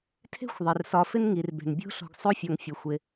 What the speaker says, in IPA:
tʰ e̤˥ xʷ ðˤ ɪ˩ r s ɒ˨ f ɪ˥ n ŋ i˩ r b e̤˩ n bʲ o̤˥ ɬ o̤˨ ɡ sˤ o˦ fʲ ɒ˨ ŋ fʲ ə˩ xʷ ɪ˩

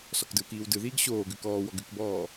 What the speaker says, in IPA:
s ɔ k d ɯ w k iː w d ɯ ð iː ɡ ɕ oː ɡ ʉ k ɔː w ɔ ɡ ʉ k b ɔː

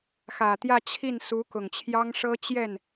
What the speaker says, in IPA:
x ä˨˩ t̪ j ä˥˧ t͡ɕʰ i˥˩ n s u˧˥ k ʊ˨˩ ŋ t͡ɕʰ j ɑ˥ ŋ ʂ ɤ˥ t͡ɕ j ɛ˥˩ n

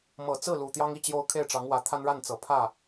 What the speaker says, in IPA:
m ɤ˨˩ t͡s ɹ̩˥˩ l u˨˩ t̪ j ɑ˥ ŋ i˥˩ t͡ɕ j o˥ ʊ̯ kʰ e˥˩ ɪ̯ ʈ͡ʂ ɑ˧˥ ŋ w ä˧˥ t̪ʰ a˥ n ɻ a˥˩ n t͡s ɤ˨˩ pʰ ä˥˩

